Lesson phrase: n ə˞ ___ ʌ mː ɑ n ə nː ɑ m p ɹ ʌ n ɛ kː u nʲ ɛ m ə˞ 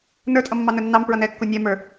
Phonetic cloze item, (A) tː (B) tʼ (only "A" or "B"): B